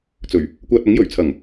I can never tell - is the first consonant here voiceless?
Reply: yes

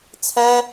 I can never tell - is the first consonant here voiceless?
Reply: yes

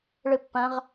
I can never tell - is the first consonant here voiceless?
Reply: no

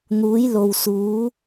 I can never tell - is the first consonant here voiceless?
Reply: no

